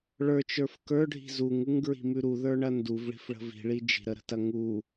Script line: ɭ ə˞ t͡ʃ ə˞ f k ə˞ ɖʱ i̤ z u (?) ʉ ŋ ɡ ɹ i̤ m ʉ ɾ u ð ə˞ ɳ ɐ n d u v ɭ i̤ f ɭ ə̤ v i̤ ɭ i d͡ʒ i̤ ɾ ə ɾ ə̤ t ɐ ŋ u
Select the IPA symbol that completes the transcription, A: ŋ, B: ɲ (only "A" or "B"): A